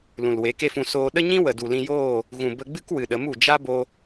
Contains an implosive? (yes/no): yes